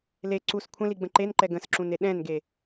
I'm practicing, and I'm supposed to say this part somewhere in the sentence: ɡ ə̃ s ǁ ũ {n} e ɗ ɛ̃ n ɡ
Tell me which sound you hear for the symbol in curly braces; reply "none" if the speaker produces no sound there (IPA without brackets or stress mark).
n